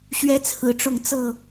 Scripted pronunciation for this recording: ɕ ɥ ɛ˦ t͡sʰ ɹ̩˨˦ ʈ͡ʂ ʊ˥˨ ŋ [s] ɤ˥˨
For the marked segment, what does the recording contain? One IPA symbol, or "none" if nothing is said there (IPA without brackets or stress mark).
t͡s